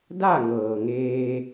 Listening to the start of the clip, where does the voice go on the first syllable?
falling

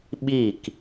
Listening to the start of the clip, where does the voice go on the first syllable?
falling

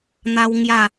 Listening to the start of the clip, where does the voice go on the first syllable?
high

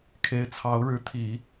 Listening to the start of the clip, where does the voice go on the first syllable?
rising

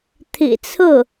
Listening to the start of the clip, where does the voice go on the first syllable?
low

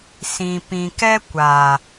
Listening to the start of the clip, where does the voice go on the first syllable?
low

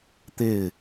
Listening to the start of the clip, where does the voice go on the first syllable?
falling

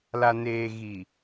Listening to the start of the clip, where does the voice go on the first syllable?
low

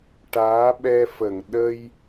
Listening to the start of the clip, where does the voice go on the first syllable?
rising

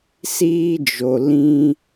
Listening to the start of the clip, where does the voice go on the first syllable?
high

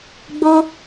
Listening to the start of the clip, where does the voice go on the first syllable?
high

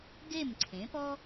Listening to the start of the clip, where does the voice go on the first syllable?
falling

